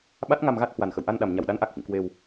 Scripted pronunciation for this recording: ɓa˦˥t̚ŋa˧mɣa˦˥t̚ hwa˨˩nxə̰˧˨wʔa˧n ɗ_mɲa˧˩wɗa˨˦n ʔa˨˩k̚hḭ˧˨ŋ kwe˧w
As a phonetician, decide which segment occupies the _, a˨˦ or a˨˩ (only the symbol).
a˨˩